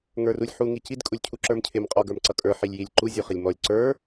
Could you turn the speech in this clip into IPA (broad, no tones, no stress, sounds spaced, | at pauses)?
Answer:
ŋ ə˞ r u lʲ ħ u ŋ i c i d kʼ u lʲ cʰ u ǁ ə˞ m cʰ ɪ m qʼ ɔ ɡ ə˞ m ǀ ʌ kʼ ə˞ ħ i lʲ j i lʲ ǃ u zʲ u χ ɪ lʲ m ɔ lʲ ǀ ə˞